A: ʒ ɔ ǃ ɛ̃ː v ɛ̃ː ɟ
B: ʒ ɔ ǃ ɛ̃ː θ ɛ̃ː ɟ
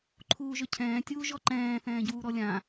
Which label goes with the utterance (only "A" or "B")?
B